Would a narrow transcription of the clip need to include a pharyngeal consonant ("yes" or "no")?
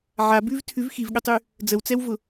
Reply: yes